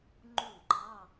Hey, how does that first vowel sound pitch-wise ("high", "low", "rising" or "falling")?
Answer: falling